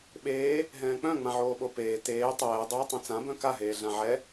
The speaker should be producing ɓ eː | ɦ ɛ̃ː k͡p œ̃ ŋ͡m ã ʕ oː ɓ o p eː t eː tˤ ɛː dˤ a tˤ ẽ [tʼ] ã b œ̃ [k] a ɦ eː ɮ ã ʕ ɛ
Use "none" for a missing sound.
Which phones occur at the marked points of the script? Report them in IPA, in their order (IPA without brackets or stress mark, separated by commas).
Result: t͡s, k